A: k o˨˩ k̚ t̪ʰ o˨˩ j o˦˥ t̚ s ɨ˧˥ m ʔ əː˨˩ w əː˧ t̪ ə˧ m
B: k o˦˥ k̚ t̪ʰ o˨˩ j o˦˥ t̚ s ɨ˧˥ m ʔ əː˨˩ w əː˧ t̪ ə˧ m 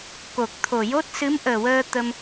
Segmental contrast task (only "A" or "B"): A